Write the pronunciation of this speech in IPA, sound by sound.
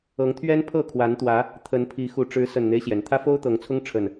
ɤ˨˦ŋt̪ʰɥɛ˦n pʰɤ˥˨kʰwa˨˦n t̪wä˨˦ | t̪ʰə˨˦npʰi˨˦ xu˨˩ʈ͡ʂɻ̩˨˦ sə˨˩nn̪e˦ɪ̯ɕjɛ˩n t̪ʰä˦fo˦ʊ̯t̪ɤ˨˦ŋt͡sʰʊ˦ŋ ʈ͡ʂʰə˨˩n

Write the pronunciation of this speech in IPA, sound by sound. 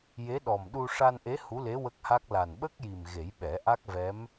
je˧˥ɗɔ˨˩mɗu˧ ʂa˧nʔe˧˥ hu˧˥le˧˥ wə˦˥k̚ha˦˥k̚ la˨˩nɓə˦˥k̚ji˨˩m ɣe˨˩˦jɓɛ˨˩˦ʔa˦˥k̚vɛ˧˥m

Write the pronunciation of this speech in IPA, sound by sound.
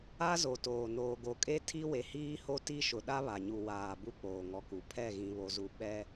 a˦zo˨toː˨noː˨ ɡo˨kʼe˦ tʰi˦we˨hiː˦ho˦ ti˦ʃʊ˨ ɗa˦βa˨ɲu˨ waː˨bu˦ k͡poː˨ŋɔ˨ku˨ pʰɛ˦˨ɣĩ˨ βo˨zu˨ ɓɛ˦

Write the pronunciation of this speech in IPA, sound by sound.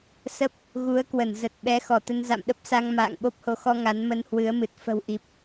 sə˦˥p̚ | ɣu˨˦ə̯kwə˧˩nzə˨˩t̚ɓɛ˨˦ xɔ˧˩t̪ə˧nza̰˧˨mɗə˦˥p̚ sa˧ŋ ma̰ː˧˨ŋɓo˦˥p̚ho˨˦xɔ˧ ŋa˨˦nmə˧nhwɨ˨˦ə̯mɨ˨˩t̚ fə̤˨˩wʔi˨˩p̚

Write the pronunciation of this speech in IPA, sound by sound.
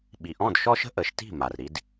ɓi˩ʔɔ̃˥˩dʃɔ˥ʃə̤˥ ʔə˩˥ʃti̤˥˩ ma˩rɾi˧d

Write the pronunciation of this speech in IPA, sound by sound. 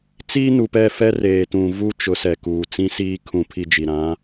t͡siː˦nu˨pɛ˦˨ fɛ˦reː˨tũ˨vu˦ t͡ʃʊ˨˦sɛ˨kuː˨ t͡sĩ˦siː˦ kʰũ˦pʰi˦ d͡ʒi˨ɾã˨˦

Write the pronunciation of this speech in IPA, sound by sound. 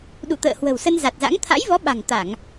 ɗṵ˧˨t̪ə̰ː˧˨ hwə̤˨˩wsə˧nza˨˩t̚za̰˧˥ŋ t̪ʰa̰˧˥jvɔ˨˦ɓa̤˨˩ŋ t̪a˧˩˨ŋ

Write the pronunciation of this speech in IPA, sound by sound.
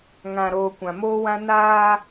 ŋã˨ɾoː˨ kʷã˨moː˦wã˦ naː˦

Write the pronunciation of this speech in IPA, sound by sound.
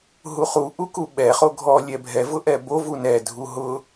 ɦuχu ʔukuɓɛ χoɡʱɔ lʲɛbʱɛvʊʔɛ bov unɛ dʱuɦʊ

